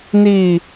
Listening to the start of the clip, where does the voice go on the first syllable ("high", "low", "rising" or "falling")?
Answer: falling